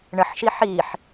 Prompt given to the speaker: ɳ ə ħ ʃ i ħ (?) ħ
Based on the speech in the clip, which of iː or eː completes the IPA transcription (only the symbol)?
iː